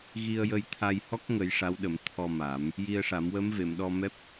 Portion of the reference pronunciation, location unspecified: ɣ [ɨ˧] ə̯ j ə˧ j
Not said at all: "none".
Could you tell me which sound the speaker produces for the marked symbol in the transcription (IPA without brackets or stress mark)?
i˧